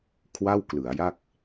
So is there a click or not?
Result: no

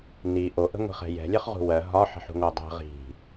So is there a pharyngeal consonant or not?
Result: yes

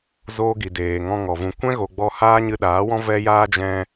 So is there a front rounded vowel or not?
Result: no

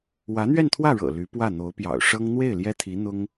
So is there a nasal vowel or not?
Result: no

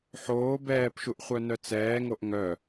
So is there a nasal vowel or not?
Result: no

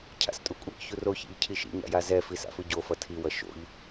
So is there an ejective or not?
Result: yes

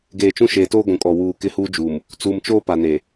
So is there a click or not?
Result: no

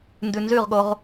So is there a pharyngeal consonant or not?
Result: no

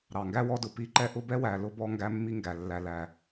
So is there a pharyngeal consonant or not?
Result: no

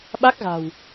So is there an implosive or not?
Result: yes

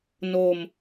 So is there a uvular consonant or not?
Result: no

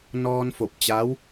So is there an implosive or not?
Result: no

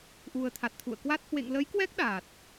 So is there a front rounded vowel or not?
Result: no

